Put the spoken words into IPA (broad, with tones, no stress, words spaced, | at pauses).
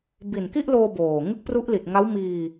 bi˨˩nki˥˩ʔloː˧ boː˨˩ ŋɯ˦˥k̚pru˦˥ʔli˨˩t̚ŋa˦˥w miː˧